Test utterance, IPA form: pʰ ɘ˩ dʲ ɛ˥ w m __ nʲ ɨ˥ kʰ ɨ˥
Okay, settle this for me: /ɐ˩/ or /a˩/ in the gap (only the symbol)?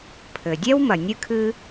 ɐ˩